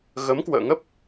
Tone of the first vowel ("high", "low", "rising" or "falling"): rising